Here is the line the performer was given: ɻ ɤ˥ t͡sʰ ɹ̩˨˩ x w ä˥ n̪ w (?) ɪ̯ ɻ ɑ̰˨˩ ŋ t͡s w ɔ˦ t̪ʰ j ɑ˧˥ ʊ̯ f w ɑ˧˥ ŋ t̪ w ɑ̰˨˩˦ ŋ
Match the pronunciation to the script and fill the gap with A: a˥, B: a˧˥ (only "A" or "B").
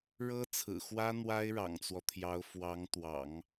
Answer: A